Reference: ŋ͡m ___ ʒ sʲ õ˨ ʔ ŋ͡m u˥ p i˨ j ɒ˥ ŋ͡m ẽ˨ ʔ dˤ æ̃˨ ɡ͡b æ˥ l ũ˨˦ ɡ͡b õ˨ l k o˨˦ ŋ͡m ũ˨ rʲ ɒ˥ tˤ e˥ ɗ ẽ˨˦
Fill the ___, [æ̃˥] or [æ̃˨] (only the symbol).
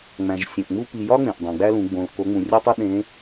æ̃˨